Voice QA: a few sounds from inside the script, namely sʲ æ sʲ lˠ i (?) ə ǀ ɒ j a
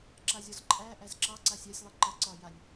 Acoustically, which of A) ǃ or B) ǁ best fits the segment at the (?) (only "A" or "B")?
A